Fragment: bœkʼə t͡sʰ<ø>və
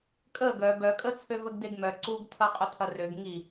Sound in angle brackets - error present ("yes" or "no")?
no